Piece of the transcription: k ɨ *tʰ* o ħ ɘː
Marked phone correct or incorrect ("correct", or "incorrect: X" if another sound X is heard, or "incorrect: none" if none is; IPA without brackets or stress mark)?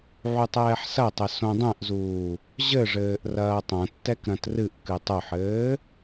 incorrect: tˤ